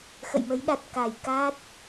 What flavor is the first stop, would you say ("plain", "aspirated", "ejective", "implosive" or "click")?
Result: implosive